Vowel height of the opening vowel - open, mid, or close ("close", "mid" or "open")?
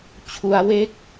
close